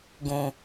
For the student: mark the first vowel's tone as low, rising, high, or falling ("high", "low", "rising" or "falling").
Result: low